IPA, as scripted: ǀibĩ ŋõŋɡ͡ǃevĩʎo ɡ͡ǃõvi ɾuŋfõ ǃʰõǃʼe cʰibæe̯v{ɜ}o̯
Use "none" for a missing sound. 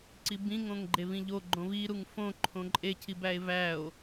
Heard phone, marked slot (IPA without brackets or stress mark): æ